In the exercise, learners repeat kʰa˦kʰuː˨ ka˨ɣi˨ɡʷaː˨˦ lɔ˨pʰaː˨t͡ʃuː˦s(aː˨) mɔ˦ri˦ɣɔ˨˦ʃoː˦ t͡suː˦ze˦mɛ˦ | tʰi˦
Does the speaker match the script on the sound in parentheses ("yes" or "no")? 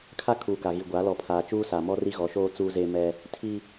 no